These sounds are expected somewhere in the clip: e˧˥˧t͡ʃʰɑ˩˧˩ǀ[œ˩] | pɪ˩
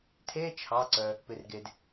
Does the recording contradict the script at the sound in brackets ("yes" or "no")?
no